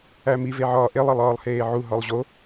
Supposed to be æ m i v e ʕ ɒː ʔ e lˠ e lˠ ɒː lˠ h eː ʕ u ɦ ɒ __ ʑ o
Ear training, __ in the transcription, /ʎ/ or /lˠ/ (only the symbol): lˠ